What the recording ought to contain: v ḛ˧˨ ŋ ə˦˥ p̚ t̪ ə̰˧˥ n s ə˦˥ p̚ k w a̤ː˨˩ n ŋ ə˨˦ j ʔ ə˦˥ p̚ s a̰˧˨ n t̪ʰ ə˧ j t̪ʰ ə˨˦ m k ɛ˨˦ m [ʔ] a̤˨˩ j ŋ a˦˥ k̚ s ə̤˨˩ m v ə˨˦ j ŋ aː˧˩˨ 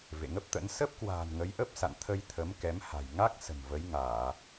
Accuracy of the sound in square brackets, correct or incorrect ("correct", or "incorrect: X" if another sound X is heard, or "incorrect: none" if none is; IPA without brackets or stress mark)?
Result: incorrect: h